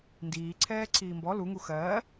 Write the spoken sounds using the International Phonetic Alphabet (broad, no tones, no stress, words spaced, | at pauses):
ndiːǀʰɛː ǀʰiːmbɔ luŋu xɜː